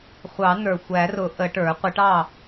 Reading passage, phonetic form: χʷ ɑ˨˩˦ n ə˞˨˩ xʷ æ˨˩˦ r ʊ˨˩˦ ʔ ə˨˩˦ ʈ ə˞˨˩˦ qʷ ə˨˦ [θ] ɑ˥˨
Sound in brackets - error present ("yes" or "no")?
yes